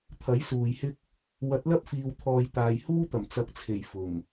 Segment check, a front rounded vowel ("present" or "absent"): absent